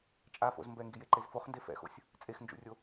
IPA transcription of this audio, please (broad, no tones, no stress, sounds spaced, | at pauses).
t͡ʃʼ a f o̰ z m b ɛ ŋ ɡ i j e ǃ e z f o χ n d e f ɛ̰ x o̰ sʲ | t͡sʼ e x n d͡ʒ ṵ rʲ o